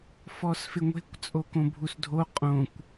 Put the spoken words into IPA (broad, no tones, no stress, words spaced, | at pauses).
fɔsfɪŋʷe̤kʷ t͡sʼokõbʱusdʱo qʼõkʷ